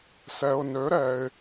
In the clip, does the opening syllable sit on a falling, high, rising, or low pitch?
low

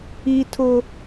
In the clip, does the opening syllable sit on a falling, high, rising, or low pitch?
high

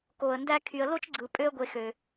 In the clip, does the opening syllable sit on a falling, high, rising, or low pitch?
low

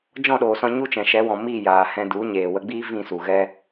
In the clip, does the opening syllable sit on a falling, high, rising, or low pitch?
falling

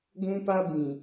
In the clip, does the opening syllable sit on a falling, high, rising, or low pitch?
high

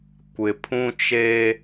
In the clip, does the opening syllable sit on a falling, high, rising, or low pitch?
low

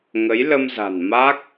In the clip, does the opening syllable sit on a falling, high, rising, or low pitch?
rising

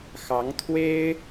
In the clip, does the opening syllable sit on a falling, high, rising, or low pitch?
rising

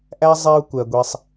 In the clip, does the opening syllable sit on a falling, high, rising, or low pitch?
high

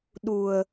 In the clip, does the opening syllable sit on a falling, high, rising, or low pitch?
low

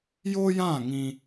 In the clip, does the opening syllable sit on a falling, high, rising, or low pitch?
high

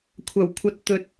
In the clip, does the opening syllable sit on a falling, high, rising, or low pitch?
low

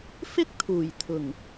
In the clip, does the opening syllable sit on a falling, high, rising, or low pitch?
high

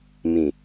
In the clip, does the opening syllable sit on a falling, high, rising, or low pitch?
low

